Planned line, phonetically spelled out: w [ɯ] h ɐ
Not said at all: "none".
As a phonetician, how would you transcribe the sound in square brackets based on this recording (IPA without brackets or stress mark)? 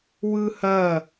ɯ